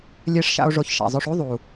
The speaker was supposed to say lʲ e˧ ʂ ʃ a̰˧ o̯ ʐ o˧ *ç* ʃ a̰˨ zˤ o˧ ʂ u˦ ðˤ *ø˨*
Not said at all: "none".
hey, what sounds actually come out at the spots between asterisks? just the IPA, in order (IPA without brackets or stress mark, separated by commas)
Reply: ç, u˨